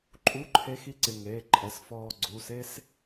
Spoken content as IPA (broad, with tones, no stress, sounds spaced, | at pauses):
ǃʼ u˧˥˧ ǃʰ e˧˥ x i˧˥ ǀ ɪ˩˧˩ ŋ eː˩˧˩ ǃʼ ɛ˩˧˩ s f ɔː˧ ɡ͡ǀ u˩˧˩ s e˥ s